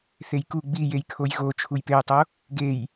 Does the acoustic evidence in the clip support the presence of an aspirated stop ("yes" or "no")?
yes